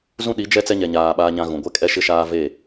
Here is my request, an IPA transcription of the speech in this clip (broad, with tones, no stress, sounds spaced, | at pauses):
z ũ˦ ɗ i˨˦ d͡ʒ ɛ˦ t͡s ɛ˦ ɲ ɛ˨ ɲ aː˨ ɓ aː˦ ɲ ã˦ ɣ ũ˨ ɡʷ ɛ˦ kʼ ɛ˦ ʃ ɪ˦ ʃ aː˦ v e˦˨